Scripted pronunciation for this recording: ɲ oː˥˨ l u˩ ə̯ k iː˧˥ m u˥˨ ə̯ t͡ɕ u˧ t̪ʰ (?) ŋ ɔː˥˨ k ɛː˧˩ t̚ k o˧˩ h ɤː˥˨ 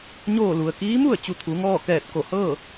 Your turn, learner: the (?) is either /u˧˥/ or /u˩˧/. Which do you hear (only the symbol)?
u˩˧